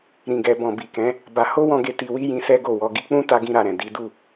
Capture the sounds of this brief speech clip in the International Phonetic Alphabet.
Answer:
ɾĩ˨ɡɛ˨bɔ̃˨ bi˨kɛ̃˨˦ | ba˧ ho˦wɔ̃˧ɡe˧ ti˧wi˦ jĩ˧sɛ˦ɡo˦˨wɔ˨˦ ɡi˧k͡pũ˦ ta˦ɡĩ˦ɾa˧ɾɛ̃˨ di˨˦ du˦˨

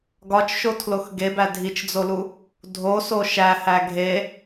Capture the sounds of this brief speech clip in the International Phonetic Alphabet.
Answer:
ɡɒt͡ʃʃotʰlox ɡebæ dʱit͡ʃd͡zolu | dʱoso ʃæhæ ɡʱe

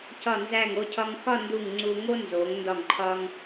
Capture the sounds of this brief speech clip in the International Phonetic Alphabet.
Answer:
cɒ˧˩nzæ˧˩ŋo˧ cʰɒ˧ŋxɒ˥˧ndu˧˩ŋ ŋ͡ǀu˧ŋo˥ nzo˩˧ŋ ndɒ˧˩ŋǃʰɒ˧ŋ

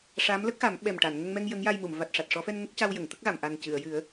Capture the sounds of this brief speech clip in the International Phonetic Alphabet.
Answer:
ʂa˧˥mlə˦˥k̚xa˨˩˦m ɓɛ˨˩m ʈa˨˩˨n ŋə˧ŋmɛ˧ŋ jə˧˥ŋja˧jmu˨˩˨m va˨˩t̚ʂa˨˩t̚ʂɔ˨˩˦fɛ˧n ŋə˦˥k̚ca˧w jə˨˩˨ŋt̪ə˦˥k̚ɣa˨˩˨m ʔa˨˩ncɨ˨˩˨ə̯jɨ˨˩˦ə̯

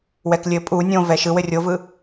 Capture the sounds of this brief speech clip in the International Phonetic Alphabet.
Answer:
wɛklʲɘ pʼu nʲõ vɛʃɯwɘ rʲovɯ

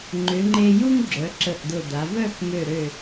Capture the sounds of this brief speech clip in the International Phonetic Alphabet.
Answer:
ŋ͡ǃʏ˩˧ŋ͡ǃe˧ju˥ŋ ɡ͡ǁœ˩˧ǁə˧˩ʔd̪ʊ˧˩d̪a˩˧ vœ˥˧x mø˧˩ɾø˧˩

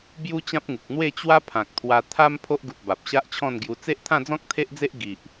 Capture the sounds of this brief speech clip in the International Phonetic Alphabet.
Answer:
bju˦t͡ɕã˦p̚ŋu˨k̚ n̪we˥˧t͡ɕwa˦ pʰã˨k̚t̪ʰwa˧ t̪ʰa˦m pʰo˦ʔɡu˨t̚ ba˨p̚ɕa˦ʔt͡ɕʰɔ̃˥˧nɡju˧ t͡se˦ʔt̪ʰã˥˧d͡zɔ̃˦k̚ t̪ʰe˦ʔd͡ze˦ʔ ɡi˨ʔ

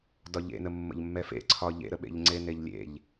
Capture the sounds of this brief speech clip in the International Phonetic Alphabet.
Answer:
dɒʎḛnə mːə̰ʎmːɛfḛǀʰɒ ʎḛɾəɓḛʎ ŋ͡ǀeneʎlʲḛʎ

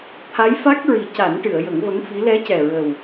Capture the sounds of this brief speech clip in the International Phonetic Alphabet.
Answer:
t̪ʰa˧˥jfa˦˥k̚ɹi˨˩˦ ca˨˩˦nʈɨ˨˩˨ə̯ jə˨˩˦ŋvə˧˥ŋfi˧˥ lɛ˧˥cɛ˨˩ɹə˨˩w

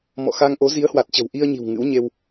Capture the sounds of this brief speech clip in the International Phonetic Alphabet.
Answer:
mɔ̰˧˨xa˧ŋʔo˨˦ zi˨˦ə̯hwa˨˩t̚t͡ɕə̤˨˩w ʔi˧ə̯ɲi̤˨˩w ŋɨ̰˧˥wɲe˧w

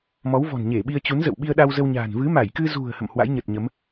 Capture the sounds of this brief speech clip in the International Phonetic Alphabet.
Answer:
mɔ˨˦wvɔ̤˨˩nɲe˧˩ ɓi˧ə̯t͡ɕu˨˦nzə̰˧˨w ɓi˧ə̯ɗa˧wzə˧wɲa̤ː˨˩n vɨ˨˦ma˧˩jkɨ˧zṳ˨˩ə̯ hə̰˧˨mhwa̰˧˥jɲə˨˩t̚ɲə˨˦m

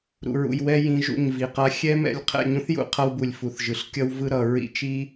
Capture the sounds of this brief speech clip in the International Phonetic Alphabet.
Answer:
ɾṵ˨ɹṵ˨jwɛ˧ jĩ˧ʒṵ˦˨ɲvi˨qa˦ xʲɛ˦mɛ̰˧lʲ qʰɛ̰˦˨ɲũ˦θjṵ˨ qʰʌ˦wbu˨lʲfu˨θ ʒɯ˨ɬkʲʌ˦w vɯ˦ɾʌ˨ ɹḭ˦ t͡ʃi˦

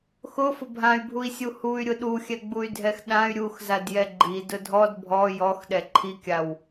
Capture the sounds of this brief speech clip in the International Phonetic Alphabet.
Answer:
xʊfʊ bʱãy̯bʱui̯sʲu huy̯ɾʲʊ ɗuxʲɛɡ͡buy̯ dʱɛxɗãy̯ ɾʲuxzadjɛ ɡ͡ǃi dʊdʱɔd bʱɔ jɔxɗɛ ǃʰikʲaw

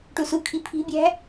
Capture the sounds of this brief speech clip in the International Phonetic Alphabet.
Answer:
ʈusukʰi pʰi̤bʲæ̤

